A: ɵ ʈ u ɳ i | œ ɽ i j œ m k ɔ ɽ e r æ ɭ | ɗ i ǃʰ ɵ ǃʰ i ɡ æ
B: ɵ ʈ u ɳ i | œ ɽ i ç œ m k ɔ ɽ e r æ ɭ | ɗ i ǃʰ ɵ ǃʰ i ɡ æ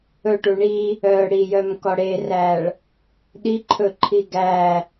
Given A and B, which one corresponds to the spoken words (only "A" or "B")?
A